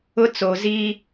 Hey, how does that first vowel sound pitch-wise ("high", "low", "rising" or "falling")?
high